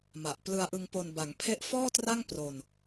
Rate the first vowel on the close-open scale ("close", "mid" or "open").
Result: open